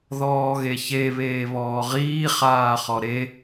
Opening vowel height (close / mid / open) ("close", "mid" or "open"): mid